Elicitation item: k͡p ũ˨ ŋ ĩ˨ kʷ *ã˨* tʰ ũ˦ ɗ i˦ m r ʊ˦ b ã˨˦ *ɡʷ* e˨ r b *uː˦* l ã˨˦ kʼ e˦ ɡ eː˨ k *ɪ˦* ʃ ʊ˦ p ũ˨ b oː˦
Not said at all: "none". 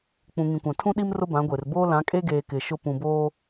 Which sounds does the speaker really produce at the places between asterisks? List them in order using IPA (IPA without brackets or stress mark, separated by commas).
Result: ã˨, ɡʷ, oː˦, ɪ˨